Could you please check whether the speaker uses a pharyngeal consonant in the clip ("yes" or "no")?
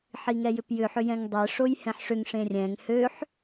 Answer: yes